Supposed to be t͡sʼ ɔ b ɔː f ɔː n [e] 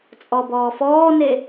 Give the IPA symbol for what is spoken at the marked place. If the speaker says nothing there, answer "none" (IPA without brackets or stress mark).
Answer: e